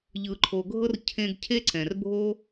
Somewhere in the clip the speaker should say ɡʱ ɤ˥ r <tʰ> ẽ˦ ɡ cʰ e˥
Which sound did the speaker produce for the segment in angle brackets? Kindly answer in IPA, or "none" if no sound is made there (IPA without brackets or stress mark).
cʰ